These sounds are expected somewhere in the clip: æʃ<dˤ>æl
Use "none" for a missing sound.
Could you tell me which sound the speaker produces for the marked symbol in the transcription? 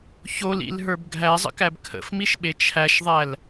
ðˤ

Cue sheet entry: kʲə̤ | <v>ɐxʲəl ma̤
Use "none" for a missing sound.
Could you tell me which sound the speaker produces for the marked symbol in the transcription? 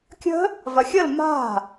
v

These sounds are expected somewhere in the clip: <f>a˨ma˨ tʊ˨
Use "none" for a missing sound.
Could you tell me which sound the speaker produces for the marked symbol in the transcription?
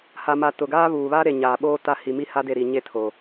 h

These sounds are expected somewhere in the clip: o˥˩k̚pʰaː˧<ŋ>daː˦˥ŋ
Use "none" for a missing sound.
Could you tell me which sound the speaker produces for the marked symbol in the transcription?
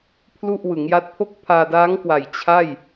none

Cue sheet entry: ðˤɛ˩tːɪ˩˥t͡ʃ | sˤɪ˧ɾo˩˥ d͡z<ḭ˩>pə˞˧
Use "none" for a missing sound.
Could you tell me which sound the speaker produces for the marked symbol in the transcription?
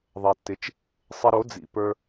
ḭ˩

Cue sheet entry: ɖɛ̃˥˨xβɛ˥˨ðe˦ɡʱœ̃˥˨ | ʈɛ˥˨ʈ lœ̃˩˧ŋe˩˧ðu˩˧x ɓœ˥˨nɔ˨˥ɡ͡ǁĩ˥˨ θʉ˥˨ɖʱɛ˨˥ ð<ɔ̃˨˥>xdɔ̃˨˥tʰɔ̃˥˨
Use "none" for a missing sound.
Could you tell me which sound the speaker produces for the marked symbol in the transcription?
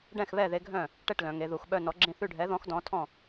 ɔ̃˨˥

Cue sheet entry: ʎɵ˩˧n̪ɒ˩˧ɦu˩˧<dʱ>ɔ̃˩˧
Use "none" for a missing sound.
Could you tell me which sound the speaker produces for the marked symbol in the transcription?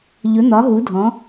dʱ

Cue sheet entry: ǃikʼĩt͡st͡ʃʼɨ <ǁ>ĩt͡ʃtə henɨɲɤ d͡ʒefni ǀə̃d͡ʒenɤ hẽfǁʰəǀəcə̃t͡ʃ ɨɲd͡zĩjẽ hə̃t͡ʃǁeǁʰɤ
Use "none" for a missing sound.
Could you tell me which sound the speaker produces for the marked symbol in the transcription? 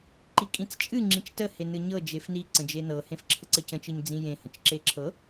ŋ͡ǁ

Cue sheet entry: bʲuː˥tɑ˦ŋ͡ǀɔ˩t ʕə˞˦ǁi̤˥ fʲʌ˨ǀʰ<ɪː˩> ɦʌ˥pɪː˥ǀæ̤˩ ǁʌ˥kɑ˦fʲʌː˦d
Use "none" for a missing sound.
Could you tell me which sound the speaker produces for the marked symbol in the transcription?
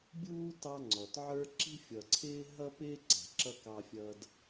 ɪː˦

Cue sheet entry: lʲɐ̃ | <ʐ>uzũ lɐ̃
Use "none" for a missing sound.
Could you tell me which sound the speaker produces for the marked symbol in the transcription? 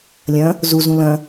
z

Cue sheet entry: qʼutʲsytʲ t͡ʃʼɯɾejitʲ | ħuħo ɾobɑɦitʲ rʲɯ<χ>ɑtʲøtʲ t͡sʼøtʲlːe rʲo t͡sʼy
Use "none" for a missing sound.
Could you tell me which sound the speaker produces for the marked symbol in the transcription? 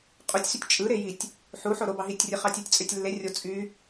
χ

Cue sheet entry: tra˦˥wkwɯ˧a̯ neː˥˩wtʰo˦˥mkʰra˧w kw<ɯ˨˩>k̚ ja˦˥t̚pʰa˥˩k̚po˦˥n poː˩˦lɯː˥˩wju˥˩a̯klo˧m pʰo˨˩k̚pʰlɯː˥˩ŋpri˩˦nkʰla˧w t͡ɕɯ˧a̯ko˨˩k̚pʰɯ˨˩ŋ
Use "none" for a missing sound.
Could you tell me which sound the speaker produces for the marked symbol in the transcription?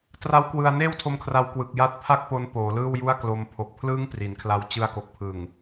ɯ˨˩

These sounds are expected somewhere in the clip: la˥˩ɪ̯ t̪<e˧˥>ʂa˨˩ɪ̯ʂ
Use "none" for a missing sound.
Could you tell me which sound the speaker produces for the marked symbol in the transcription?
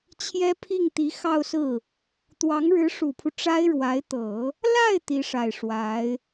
i˧˥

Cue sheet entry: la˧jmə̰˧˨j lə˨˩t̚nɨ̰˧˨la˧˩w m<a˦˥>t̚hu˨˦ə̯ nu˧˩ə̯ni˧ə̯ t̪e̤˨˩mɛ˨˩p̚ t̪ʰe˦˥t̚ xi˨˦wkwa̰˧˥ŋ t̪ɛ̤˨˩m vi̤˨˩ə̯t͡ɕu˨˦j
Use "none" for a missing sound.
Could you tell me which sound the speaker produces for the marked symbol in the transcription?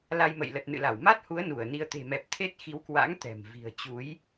a˦˥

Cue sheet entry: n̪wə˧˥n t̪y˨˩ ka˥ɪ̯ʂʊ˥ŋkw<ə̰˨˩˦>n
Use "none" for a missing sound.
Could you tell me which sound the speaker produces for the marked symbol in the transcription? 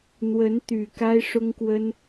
ə˥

